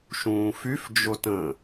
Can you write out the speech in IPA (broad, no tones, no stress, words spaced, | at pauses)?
ʃũːfyf d͡ʒotə̃